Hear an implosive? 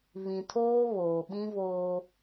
yes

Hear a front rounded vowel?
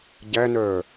yes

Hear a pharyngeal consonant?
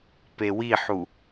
yes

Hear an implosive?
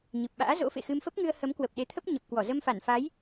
yes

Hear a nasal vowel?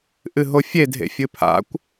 no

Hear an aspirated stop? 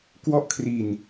yes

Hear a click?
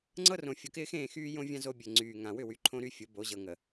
yes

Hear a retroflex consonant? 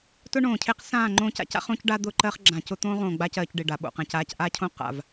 yes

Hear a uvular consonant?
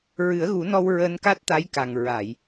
no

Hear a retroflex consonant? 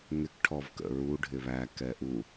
yes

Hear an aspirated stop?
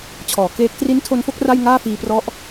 yes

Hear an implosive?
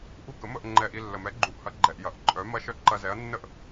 no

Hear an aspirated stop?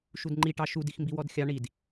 no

